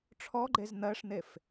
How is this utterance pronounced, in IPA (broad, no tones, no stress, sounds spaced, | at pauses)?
ʈ͡ʂʰ ɔ ɡ͡ǃ e z n̪ ɜ ʂ n̪ e f